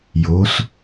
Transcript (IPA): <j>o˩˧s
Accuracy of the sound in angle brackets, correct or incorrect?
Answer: correct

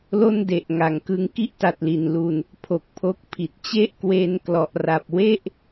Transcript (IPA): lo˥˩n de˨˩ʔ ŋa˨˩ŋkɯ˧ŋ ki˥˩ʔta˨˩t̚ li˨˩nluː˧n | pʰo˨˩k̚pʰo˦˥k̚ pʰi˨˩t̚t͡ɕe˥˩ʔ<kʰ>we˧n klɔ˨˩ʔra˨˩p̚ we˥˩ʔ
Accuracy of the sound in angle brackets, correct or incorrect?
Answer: incorrect: k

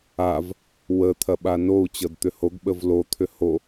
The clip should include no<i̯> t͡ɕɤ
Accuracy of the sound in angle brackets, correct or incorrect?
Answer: incorrect: u̯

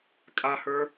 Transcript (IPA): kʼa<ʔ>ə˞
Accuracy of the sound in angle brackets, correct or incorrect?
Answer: incorrect: h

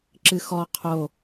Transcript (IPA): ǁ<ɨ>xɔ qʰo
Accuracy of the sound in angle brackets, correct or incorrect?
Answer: correct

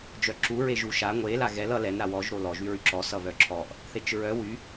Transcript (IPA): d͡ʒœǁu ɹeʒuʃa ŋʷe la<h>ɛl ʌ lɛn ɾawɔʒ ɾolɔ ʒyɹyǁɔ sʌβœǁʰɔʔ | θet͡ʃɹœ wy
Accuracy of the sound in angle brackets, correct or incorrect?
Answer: incorrect: ɣ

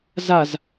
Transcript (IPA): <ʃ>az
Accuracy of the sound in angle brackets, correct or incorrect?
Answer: incorrect: z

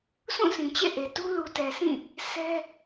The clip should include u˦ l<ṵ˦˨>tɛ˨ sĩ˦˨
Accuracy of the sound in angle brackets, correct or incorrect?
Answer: incorrect: u˨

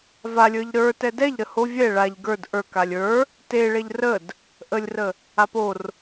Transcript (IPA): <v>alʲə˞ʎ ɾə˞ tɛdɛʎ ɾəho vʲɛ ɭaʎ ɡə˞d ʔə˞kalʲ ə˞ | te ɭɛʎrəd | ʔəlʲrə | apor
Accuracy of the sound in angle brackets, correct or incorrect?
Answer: correct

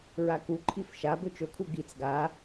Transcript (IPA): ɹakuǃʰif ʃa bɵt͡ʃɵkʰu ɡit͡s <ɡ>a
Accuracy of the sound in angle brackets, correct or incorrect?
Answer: correct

